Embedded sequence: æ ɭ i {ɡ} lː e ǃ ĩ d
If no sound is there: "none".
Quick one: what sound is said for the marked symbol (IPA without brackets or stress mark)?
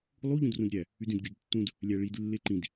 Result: d